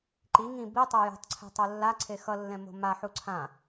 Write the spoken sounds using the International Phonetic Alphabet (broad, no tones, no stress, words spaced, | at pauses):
ǃi ŋĩ bitˤo jo̤tˤǀʰe̤ tˤolːa ǀʰexʌlːɛ̃ mo̤ma ħuǀʰã